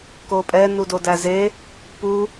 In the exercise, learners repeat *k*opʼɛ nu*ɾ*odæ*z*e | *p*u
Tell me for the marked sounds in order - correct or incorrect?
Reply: correct, incorrect, correct, correct

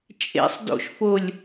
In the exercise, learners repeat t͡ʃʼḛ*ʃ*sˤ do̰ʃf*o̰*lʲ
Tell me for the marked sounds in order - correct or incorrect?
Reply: incorrect, incorrect

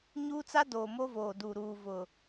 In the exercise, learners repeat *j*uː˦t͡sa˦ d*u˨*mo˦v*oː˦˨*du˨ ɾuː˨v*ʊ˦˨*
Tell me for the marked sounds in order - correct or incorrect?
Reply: incorrect, incorrect, incorrect, incorrect

